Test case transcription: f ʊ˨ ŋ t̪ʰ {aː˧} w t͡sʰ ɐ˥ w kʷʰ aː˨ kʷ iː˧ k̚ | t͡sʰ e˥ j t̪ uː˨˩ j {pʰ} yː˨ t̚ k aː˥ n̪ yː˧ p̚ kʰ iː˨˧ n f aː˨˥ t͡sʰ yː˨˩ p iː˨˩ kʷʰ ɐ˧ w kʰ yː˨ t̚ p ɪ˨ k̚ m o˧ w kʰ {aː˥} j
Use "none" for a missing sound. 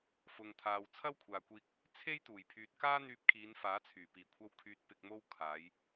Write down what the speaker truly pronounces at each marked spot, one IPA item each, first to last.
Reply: aː˨, pʰ, aː˨˧

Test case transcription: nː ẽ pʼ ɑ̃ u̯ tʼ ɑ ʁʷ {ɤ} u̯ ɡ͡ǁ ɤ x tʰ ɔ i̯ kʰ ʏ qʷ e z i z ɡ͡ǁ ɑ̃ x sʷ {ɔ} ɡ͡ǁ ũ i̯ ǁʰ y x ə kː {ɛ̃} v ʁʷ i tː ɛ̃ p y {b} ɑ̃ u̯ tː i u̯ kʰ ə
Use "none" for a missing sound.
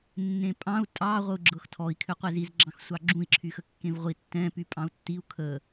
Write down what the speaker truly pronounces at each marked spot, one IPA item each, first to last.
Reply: ɤ, ɑ, ẽ, pʼ

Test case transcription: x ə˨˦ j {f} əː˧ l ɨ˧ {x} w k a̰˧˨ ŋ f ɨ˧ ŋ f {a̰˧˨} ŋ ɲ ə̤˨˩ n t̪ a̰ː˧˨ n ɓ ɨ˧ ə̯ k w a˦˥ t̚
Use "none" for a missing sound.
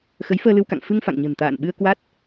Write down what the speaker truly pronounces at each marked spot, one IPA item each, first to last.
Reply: f, none, a̰˧˨

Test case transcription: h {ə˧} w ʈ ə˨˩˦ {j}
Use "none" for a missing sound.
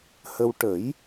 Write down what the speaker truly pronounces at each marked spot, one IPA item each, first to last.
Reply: ə˧, j

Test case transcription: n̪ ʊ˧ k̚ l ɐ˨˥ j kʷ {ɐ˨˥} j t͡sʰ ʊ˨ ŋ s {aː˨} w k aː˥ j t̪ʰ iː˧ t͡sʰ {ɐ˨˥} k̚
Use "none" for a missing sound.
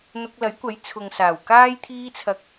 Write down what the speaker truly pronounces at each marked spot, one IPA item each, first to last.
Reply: ɐ˨˥, aː˨˩, ɐ˨˥

